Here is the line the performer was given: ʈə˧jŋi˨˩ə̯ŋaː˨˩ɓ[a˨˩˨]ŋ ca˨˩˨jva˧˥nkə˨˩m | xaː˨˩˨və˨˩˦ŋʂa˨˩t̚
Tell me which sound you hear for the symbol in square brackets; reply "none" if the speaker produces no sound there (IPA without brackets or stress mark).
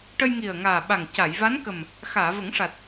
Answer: a˨˩